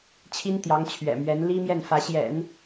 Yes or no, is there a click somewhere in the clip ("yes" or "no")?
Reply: no